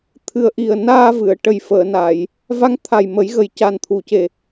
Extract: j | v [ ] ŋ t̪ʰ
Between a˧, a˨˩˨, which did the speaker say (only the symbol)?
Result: a˧